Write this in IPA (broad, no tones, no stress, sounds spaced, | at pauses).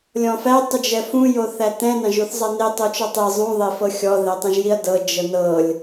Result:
lʲ ɔ̃ f æ tˤ u d͡ʒ ɛ f ũ j o θ æ t ɛ̃ n ɑ̃ ʒ u θ zˤ ɑ n e tˤ o t͡ʃ ɔ tˤ e zˤ ũ ðˤ e f ɤ xʲ ɔ ð ɛ tˤ ɛ̃ ʒ j i ɐ̯ d ɤ d͡ʒ ɤ n ɤ lʲ